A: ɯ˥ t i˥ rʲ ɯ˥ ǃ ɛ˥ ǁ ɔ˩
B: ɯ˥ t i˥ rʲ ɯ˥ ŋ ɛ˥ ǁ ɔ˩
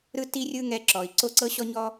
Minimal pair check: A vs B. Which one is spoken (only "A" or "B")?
B